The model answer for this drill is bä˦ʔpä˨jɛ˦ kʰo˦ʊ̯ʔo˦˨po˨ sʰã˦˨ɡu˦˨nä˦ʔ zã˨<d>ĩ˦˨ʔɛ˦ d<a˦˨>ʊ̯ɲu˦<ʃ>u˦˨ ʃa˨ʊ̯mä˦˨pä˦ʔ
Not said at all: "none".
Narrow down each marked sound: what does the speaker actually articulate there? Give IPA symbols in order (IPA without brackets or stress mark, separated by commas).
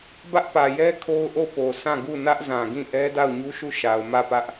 ɡ, a˦˨, ʃ